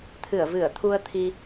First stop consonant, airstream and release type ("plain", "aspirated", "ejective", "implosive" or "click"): aspirated